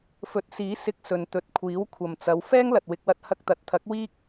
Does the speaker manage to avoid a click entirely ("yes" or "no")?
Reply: yes